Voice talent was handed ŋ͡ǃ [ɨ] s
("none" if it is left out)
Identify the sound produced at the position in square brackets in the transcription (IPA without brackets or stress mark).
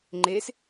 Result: e